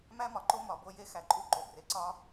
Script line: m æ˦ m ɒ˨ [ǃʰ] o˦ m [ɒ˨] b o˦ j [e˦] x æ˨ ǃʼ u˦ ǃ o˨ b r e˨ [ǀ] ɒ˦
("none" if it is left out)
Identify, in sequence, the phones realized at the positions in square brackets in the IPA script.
ǃ, ɒ˨, e˦, ǀ

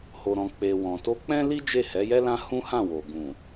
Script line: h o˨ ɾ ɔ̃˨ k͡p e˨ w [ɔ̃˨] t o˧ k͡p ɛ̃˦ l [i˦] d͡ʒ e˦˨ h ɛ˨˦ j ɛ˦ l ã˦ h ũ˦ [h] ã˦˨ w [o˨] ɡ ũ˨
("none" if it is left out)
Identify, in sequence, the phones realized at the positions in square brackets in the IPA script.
ɔ̃˨, i˦, h, o˨

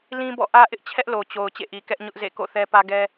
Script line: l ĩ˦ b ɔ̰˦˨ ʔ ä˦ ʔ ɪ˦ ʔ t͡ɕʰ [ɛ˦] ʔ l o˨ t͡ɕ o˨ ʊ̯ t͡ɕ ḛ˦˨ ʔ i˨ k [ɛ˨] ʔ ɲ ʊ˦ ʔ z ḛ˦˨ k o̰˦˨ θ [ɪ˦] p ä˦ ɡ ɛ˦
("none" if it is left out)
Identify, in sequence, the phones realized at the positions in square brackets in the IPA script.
ɛ˦, ɛ˦, ɛ˦

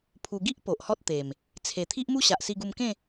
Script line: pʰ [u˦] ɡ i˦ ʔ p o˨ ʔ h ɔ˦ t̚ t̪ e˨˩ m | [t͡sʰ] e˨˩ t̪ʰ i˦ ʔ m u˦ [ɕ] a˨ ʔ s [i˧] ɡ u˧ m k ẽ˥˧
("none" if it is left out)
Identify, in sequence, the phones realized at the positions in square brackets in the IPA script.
u˧, t͡sʰ, ɕ, i˧

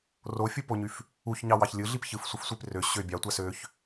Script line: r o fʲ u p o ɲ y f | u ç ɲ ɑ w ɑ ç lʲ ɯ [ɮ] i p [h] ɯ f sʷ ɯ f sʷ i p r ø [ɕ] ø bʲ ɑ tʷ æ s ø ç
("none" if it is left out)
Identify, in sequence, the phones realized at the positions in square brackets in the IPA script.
ɮ, ç, ɕ

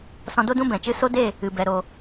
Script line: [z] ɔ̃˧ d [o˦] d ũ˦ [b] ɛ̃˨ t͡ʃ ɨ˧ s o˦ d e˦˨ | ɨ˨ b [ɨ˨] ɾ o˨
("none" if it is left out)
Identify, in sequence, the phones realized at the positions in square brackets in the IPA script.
s, o˦, b, ɛ˨

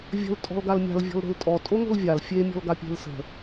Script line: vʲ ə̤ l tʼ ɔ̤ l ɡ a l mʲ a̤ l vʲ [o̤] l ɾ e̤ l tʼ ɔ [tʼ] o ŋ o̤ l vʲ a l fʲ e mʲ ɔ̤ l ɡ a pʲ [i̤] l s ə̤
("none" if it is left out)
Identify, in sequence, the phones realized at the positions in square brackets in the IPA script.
ɔ̤, tʼ, e̤

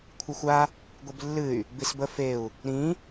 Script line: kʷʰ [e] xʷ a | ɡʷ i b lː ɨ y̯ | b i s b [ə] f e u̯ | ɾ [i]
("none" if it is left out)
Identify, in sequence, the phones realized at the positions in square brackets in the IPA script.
ɨ, ə, ĩ

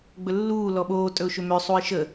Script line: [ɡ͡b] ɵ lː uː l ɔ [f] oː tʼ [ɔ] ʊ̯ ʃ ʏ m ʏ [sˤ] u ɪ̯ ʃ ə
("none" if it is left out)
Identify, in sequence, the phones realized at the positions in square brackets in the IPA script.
ɡ͡b, ɓ, ɵ, sˤ

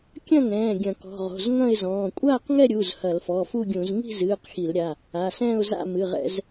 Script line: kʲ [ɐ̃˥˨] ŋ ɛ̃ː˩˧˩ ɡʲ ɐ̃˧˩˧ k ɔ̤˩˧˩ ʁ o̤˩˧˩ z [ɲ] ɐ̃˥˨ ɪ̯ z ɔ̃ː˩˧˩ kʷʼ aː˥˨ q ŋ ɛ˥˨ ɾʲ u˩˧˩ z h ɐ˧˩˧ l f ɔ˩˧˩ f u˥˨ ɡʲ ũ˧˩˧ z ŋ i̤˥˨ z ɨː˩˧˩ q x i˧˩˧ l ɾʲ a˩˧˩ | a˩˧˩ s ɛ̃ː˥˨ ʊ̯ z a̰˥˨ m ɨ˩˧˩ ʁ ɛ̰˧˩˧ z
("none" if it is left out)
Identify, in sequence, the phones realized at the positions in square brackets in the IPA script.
ɐ̃˥˨, ŋ

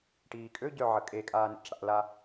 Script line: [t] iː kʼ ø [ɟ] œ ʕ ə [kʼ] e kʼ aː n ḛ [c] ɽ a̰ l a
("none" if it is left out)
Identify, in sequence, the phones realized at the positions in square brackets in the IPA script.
ʈ, ɟ, kʼ, c

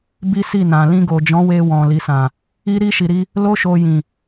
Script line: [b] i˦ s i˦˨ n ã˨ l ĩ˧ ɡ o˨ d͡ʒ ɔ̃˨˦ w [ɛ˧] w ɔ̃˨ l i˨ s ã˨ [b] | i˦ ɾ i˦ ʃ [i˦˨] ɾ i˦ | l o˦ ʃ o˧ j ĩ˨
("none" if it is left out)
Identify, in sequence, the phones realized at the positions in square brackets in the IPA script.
b, e˧, none, i˧

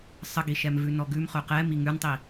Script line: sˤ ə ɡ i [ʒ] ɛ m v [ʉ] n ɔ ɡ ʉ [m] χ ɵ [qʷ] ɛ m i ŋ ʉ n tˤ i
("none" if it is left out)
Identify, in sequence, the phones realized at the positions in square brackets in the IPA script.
ʃ, ʉ, m, q

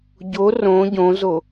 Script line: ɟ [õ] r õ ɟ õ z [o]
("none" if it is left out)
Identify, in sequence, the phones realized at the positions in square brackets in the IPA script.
o, o

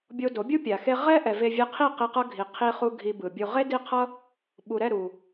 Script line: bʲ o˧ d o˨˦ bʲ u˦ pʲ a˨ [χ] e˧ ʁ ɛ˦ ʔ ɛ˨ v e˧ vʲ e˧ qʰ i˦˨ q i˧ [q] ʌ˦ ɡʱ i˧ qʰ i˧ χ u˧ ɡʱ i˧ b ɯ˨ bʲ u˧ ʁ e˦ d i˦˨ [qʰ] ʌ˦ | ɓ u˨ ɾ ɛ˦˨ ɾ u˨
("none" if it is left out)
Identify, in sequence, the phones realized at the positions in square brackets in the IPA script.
x, q, qʰ

